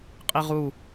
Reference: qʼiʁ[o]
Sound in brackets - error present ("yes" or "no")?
yes